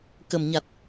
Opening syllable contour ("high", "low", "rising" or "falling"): low